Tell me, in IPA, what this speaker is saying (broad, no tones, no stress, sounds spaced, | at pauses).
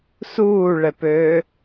s uː ɭ ɛ p øː